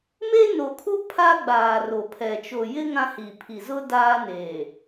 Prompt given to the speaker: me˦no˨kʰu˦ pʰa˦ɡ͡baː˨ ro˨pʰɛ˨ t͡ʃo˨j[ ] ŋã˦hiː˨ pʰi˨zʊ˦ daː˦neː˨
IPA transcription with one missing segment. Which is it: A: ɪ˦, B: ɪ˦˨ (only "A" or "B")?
A